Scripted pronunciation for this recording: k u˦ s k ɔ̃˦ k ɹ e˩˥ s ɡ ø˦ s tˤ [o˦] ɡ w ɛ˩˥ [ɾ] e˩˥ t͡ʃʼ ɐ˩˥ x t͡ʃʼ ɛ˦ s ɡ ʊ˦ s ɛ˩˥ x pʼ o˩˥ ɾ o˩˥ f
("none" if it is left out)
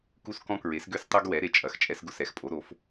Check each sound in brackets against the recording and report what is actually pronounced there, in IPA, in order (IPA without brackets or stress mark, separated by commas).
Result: o˦, ɾ